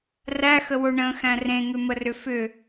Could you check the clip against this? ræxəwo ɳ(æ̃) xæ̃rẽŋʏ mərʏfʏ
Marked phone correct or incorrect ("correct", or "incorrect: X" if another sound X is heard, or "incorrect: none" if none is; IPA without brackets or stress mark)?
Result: incorrect: ə̃